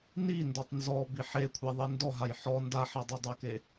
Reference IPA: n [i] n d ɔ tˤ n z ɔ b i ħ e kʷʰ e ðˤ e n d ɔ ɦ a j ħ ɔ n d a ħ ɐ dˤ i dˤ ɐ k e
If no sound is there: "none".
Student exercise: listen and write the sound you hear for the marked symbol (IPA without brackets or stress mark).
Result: i